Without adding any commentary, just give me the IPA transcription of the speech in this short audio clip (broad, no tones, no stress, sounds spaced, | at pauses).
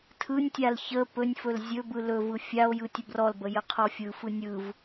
tʰ ɯ nʲ tʲ a l ç ə p ɵ nʲ f ɵ l zʲ ɵ b ɯ l ɵ v ɯ fʲ a o̯ j ɯ tʲ ə b r ɔ l b ə j ə qʰ ɔ fʲ ɯ f ɯ nʲ ɯ v